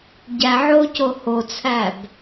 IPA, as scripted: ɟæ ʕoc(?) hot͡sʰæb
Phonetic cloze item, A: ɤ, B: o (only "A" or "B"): B